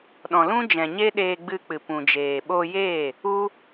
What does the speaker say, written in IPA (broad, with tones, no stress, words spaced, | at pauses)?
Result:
ɗɔ̃˨lũ˦d͡ʒɛ̃˨ ɲe˦ɗeː˧ɡ͡bɨ˧k͡pɨ˨ pũ˨d͡ʒeː˨ɓo˧jeː˦˨ | u˦